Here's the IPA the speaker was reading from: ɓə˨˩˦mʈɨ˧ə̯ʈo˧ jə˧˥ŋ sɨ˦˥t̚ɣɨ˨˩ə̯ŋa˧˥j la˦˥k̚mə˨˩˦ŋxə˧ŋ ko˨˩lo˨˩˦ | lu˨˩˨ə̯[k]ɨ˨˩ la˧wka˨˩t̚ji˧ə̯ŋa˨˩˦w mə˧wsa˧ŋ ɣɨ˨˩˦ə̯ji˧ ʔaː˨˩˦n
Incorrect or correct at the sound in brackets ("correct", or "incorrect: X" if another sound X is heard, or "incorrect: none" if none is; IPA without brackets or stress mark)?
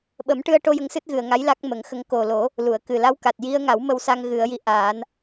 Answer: correct